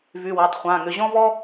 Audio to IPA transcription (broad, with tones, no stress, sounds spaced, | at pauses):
v y˩˧˩ w o˩˧˩ tˤ χʷ ã˩˧˩ ŋ ʏ˩˧˩ ʑ ɔ̃˥ v ɔ˥